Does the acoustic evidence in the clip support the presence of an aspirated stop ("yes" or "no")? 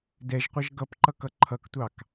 yes